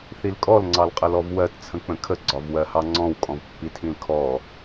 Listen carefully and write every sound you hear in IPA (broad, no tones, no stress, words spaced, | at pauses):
θilkʼɔl ŋ͡ǀɑlqʼəlɔvwɜt t͡sʰə̃k͡pə̃kʰə ɡ͡ǀɒvwɜhɑŋ͡ǀɔ̃w kʼɔ̃vpːitʰĩlkʰɔ